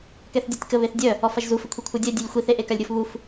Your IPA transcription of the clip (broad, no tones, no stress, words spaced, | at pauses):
kɛθdʲotʲkə βeθdʲœ | ɔfaʒzu fəkʷʰikʷʰœdʲœ dʲølʲxʷiθ eʔekalʲɾʲof βuf